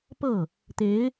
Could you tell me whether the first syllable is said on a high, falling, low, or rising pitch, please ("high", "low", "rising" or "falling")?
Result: falling